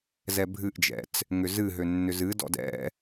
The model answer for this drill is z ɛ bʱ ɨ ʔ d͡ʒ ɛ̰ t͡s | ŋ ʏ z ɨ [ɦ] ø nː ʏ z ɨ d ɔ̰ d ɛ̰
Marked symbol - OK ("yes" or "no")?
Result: yes